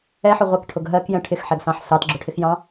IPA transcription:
ɛ ħ ʊ ʁʷ ɛ k ʈʰ ʊ ɡ ɦ ɜ k j ɛ̃ ʈʰ ɪ x ħ ɛ ɡ s ɑ̃ ħ s ɑ t ɡ͡ǁ ʊ ʈʰ ɪ x j ɑ̃

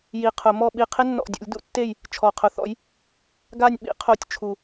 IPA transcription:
j i˨˩ qʰ ʊ˨˩˦ m ɔ˦˨ ɓ i˦˨ qʰ ɪ˦ nː ɔ̰˨˩ dʲ ṵ˨˩˦ lʲ d ṵ˨˦ tː e˦˨ j | t͡ʃʰ ɔ˨˩ qʰ ʊ˨˦ θ ɔ̰˨˦ j | ɡ a˦˨ nʲ ɓ ḭ˨˩˦ qʰ o˨˦ tʲ t͡ʃʰ u˨˩

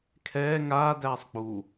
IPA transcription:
kʰ ɛː ŋ aː d æː sˤ k͡p u

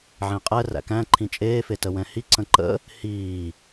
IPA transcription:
ʕ ẽ qʼ ɛ r æ̰ k æ̃ ǃʰ ĩ t͡ʃʼ eː f e t ə w ɛ̃ h i ǀ ə̃ ǃ ə̰ | h iː

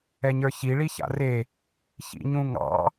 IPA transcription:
ɛ ɲ ə˞ ç i ɭ i ç a̰ r e | ç ḭ ɲ ũ ŋ ɑ̰

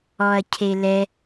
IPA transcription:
ɔ ɐ̯ cʰ e l ɛ

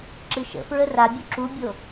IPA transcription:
ǁ ɨ ʃ ə̰ f ɹ ə r a bʲ u ǁ u bʲ o

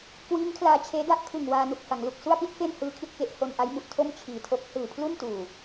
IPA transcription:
k w iː˦˥ ŋ kʰ l aː˧ t͡ɕʰ eː˦˥ d a˥˩ ʔ kʰ ɯ˨˩ ŋ w aː˧ n u˨˩ k̚ f a˩˦ ŋ l u˨˩ k̚ s u˥˩ a̯ p i˦˥ t̚ f e˥˩ n h ɯː˧ kʰ i˥˩ t̚ k e˦˥ ʔ h o˧ n ʔ a˦˥ j m u˨˩ ʔ tʰ o˥˩ m t͡ɕʰ iː˨˩ tʰ o˦˥ k̚ h ɯː˨˩ pʰ l u˥˩ n t uː˨˩

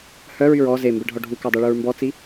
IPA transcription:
h œ ɹ y ɹ ɔ z e m b ɛ ɖʱ ɔ ɖʱ u k ɑ dˤ y ɭ u ɹ m b ɔ t͡s i

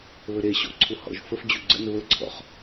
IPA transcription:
β ə ɾ e ɕ ɔ̰ ǀʰ u h ɔ̰ ʒ f ə f d͡ʑ u ɡ͡ǀ ə̰ n β ə ǀʰ ɔ̰ χ

